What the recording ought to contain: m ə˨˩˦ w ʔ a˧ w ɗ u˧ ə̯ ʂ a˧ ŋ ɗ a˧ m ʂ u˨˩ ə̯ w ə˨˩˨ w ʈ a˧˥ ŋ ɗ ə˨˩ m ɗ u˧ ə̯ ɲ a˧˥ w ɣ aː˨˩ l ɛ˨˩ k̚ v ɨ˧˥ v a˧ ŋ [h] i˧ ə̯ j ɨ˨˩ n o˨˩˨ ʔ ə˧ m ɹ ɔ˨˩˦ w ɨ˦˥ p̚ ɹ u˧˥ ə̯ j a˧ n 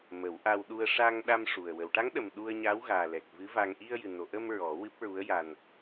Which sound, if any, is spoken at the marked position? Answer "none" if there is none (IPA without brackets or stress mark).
ʔ